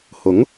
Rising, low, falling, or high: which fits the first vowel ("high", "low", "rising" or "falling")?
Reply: rising